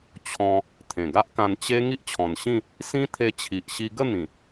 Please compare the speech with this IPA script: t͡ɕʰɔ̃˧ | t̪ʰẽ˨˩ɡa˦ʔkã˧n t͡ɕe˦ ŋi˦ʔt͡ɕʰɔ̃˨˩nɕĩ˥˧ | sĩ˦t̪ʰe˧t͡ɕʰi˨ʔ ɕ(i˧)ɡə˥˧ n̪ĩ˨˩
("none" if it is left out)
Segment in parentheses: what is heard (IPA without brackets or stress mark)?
i˧